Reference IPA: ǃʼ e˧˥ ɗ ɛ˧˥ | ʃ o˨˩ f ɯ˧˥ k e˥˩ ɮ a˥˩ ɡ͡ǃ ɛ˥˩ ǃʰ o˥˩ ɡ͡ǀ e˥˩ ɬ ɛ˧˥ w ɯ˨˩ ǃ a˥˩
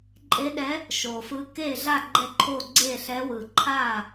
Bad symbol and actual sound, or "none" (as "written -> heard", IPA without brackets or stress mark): ǃ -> ǃʰ